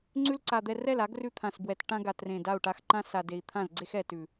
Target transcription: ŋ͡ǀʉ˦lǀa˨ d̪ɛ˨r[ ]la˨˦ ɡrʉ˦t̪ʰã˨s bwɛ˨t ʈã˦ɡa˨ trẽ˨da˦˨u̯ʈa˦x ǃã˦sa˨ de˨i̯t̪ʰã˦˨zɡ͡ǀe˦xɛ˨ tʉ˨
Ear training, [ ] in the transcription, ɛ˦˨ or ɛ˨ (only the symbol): ɛ˦˨